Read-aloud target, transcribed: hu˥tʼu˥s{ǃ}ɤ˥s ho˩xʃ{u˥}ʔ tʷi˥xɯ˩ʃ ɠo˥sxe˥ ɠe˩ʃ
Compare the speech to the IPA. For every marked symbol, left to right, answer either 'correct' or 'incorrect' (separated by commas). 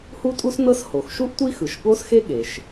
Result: incorrect, correct